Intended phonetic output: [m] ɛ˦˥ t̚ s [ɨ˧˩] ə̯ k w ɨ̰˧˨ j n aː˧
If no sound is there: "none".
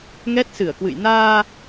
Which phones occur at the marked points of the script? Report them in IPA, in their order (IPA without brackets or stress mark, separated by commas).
ŋ, ɨ˧˩